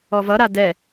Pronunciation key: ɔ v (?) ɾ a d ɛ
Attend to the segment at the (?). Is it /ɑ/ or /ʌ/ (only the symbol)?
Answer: ʌ